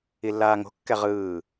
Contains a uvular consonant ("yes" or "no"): yes